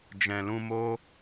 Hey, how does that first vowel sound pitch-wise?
low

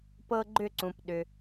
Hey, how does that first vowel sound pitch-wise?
high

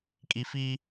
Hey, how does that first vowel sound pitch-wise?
high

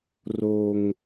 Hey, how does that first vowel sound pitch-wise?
high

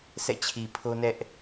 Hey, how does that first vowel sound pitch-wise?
falling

